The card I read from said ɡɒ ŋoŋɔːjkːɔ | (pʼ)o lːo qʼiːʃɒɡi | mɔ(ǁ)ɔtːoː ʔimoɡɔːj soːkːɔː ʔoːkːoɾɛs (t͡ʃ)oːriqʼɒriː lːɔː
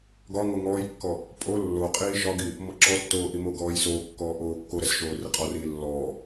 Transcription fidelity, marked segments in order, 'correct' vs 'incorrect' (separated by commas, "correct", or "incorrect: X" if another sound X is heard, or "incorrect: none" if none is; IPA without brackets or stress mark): correct, correct, incorrect: ʃ